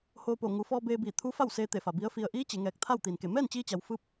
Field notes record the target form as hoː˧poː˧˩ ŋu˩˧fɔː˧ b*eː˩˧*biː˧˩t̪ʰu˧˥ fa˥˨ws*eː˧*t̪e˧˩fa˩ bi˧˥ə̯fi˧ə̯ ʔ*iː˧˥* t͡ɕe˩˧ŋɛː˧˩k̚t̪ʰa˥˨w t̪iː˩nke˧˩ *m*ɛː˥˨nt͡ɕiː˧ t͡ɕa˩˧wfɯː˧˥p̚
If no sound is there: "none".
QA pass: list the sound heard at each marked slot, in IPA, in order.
eː˧, eː˧, iː˧˥, m

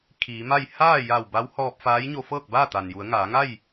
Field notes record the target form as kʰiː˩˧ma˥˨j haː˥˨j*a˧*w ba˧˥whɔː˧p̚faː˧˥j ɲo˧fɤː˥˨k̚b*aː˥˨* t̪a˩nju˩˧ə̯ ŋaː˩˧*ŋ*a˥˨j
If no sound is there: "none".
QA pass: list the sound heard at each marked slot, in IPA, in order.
a˧˩, aː˥˨, ŋ

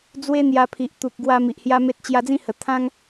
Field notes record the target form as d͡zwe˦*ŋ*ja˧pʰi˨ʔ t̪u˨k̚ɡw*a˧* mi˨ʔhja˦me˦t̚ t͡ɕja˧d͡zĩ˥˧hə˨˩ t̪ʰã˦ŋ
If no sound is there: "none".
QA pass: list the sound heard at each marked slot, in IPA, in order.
n̪, a˧

